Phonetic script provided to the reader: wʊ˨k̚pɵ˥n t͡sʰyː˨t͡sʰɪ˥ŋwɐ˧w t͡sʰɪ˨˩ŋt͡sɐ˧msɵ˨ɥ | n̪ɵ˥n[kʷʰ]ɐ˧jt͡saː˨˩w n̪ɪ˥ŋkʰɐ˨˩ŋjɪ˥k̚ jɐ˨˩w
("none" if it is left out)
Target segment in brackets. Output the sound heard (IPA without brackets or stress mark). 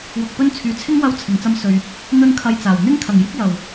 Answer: kʰ